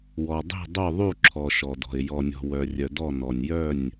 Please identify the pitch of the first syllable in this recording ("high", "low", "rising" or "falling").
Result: low